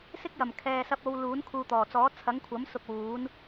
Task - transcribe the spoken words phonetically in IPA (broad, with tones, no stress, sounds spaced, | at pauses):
s ɪ˥ k̚ j ɐ˨˩ m kʰ ɛː˨ s ɐ˧ p̚ o˨˧ w l uː˨˥ n kʰ uː˨ t̪ ɔː˨˩ t͡s ɔː˨˥ t͡sʰ ɐ˨˥ ŋ kʷʰ ɐ˨˥ m s ʊ˧ k̚ w uː˨˥ n